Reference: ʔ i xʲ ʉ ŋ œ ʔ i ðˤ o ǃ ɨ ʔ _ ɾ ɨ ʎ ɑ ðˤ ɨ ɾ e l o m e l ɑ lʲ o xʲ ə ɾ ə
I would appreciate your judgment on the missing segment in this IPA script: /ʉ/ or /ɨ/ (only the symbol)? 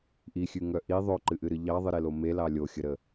ɨ